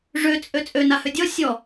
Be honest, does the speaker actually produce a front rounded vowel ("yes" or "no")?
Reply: yes